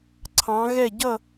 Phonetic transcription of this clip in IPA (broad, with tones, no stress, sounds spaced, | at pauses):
ǀʰ ɑ̃˨˦ ɣ ɛ˦˨ ɟ ʌ˦˨